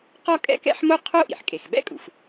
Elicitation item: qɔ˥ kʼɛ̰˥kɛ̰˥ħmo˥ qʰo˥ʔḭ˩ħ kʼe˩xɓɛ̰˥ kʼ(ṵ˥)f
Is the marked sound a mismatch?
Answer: yes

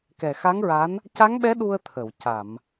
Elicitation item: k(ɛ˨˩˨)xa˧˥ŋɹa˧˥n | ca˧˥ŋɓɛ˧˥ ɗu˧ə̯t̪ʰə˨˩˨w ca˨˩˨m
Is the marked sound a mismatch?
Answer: yes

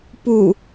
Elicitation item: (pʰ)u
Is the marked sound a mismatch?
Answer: yes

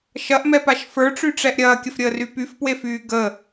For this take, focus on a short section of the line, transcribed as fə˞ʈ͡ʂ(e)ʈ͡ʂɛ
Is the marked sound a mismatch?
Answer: yes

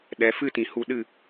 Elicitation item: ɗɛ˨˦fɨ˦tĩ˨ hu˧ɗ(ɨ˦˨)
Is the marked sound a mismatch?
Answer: no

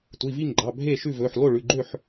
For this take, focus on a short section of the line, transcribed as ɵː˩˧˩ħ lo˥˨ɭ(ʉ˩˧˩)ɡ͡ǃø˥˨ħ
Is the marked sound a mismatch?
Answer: no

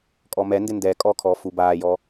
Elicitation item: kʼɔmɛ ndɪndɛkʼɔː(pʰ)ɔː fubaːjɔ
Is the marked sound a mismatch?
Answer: yes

